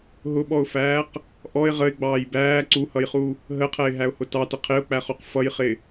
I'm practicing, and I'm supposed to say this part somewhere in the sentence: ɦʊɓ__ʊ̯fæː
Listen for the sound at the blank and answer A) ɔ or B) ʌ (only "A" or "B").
A